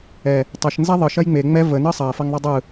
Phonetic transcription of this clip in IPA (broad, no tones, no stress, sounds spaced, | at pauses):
ɛ | tˤ ə ʃ n z ɛ ðˤ ɯ ʃ ɐ j ŋ͡m e ŋ͡m ɛ v ə n ɯ sˤ ɐ f ɐ ŋ ðˤ ə dˤ ɯ